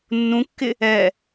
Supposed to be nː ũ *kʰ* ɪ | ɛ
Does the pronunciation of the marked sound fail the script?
yes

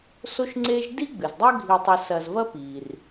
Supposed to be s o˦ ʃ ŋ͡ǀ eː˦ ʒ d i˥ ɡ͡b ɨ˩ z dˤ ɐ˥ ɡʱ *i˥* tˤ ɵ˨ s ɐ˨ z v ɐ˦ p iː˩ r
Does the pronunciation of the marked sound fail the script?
yes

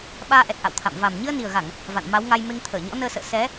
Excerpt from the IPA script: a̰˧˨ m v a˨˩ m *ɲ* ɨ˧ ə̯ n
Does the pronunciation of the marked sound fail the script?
no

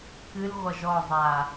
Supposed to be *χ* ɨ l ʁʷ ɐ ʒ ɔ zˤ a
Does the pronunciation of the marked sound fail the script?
yes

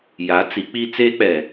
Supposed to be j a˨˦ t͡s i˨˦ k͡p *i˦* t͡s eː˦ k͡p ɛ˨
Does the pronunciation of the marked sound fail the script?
no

